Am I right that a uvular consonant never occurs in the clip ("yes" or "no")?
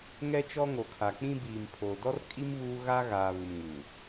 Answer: yes